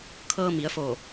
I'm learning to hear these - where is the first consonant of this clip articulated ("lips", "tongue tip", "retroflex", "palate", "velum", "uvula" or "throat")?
velum